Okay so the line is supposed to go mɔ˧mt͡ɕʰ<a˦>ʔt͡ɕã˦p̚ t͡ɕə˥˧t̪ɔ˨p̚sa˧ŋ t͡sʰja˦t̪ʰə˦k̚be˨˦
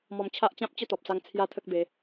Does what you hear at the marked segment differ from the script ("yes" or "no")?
no